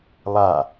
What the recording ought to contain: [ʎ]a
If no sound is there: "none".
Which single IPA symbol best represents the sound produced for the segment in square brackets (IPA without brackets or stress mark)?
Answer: lˠ